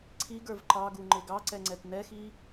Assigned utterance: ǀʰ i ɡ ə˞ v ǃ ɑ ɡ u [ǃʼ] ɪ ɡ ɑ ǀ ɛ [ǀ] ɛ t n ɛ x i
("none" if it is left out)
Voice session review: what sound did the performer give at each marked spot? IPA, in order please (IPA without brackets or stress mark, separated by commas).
ŋ͡ǃ, ŋ͡ǀ